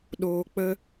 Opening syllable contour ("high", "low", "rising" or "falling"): low